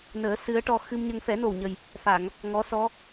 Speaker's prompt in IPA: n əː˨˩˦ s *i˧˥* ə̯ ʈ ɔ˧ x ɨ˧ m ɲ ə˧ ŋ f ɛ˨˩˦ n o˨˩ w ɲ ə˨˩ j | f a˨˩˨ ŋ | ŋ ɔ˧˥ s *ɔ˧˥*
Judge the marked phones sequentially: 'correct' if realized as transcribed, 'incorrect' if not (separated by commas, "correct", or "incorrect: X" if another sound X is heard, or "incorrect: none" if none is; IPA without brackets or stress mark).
incorrect: ɨ˧˥, correct